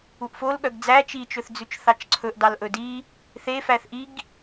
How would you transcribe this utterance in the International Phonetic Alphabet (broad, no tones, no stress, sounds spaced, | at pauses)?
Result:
u ʔ f o l ɠ œ ɡ d͡z æ t͡ʃ i t͡ʃ ɵ θ d͡z ʉ t͡ʃ θ ɑ t͡ʃ ǀʰ ɵ ʔ d ɑ l ʔ ɵ d i | θ e f æ θ ʔ i ɡ